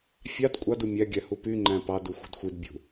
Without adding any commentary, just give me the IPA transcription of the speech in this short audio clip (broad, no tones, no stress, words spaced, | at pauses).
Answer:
fʲɑd kʷʼɑd umʲæɡʲæ hupyŋ͡ǃæ̃ pɑdu xʷe̤dxʷidbʲṳ